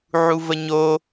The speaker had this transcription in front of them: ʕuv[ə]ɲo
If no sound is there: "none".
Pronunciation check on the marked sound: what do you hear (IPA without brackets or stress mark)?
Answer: ə